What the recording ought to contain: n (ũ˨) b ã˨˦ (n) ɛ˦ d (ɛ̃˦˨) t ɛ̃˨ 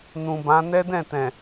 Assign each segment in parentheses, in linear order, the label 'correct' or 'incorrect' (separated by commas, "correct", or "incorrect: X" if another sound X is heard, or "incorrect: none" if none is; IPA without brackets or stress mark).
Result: correct, correct, correct